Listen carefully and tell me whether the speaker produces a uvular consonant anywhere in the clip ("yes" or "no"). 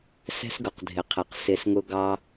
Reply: yes